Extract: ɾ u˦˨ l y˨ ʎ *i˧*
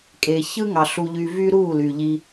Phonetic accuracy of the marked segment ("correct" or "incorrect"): correct